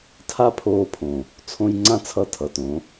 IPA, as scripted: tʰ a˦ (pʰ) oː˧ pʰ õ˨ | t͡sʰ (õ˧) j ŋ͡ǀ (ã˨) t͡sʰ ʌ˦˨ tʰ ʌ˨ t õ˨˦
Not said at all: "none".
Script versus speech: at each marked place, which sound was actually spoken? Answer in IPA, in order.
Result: pʰ, õ˧, ã˦

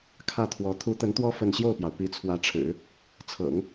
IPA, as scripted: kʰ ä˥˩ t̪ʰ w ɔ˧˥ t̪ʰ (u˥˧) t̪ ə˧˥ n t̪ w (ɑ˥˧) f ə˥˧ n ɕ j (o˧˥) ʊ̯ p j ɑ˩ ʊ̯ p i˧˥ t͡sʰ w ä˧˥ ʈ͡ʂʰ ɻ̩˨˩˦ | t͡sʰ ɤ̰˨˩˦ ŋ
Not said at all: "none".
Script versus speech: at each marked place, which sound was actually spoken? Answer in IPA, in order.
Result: u˧˥, ɔ˥˧, o˥˩

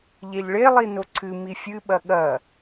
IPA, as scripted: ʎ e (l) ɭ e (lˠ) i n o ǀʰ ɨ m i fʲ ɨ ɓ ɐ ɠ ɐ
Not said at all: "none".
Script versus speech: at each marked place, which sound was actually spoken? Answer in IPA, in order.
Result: ʎ, lˠ

